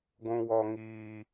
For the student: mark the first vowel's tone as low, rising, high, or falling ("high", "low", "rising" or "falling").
low